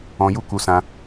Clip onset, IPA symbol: ɔ̃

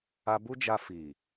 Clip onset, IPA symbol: a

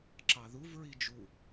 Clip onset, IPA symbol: ǁ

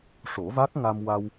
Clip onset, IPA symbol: ʂ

